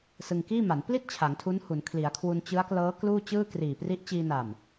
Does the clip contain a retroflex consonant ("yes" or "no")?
no